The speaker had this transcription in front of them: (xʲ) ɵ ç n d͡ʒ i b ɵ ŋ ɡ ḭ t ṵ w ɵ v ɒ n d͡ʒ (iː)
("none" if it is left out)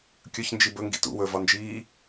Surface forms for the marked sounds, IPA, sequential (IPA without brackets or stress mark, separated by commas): kʲ, iː